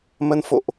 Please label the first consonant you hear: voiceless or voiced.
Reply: voiced